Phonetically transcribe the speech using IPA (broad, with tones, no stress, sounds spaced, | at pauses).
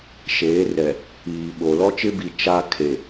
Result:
ʃ eː˨˦ r ɛ˨ | iː˨ ɓ o˨ l ɔ˦ t͡ʃ ɪ˦ b i˨ t͡ʃ a˦ kʰ e˨